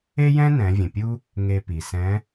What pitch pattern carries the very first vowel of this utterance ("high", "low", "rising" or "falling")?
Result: high